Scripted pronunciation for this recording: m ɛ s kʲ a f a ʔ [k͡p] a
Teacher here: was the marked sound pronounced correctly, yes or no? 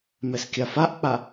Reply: yes